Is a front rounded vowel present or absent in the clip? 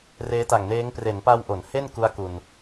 absent